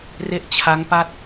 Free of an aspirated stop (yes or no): no